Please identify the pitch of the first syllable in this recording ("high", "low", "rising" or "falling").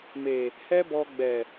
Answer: low